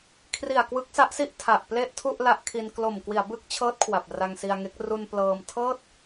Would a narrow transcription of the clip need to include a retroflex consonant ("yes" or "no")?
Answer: no